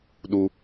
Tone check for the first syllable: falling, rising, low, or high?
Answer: high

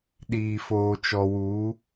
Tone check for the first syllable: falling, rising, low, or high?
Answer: low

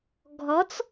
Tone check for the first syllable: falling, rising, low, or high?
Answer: rising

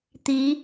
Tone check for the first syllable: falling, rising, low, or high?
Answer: rising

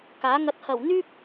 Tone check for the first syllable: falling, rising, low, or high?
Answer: rising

